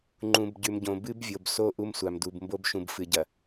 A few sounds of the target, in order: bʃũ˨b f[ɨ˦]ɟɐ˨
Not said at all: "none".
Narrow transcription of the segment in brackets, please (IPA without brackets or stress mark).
ɨ˨